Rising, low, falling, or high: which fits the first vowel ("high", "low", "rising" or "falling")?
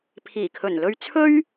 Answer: low